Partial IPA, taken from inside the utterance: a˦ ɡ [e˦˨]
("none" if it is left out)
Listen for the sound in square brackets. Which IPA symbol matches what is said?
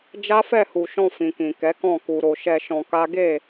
e˦˨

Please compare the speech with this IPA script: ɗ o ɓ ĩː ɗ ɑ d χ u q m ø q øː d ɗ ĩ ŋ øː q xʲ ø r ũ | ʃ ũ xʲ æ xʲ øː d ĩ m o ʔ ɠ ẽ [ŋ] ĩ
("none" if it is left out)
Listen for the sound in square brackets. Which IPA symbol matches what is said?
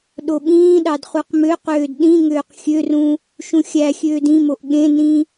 n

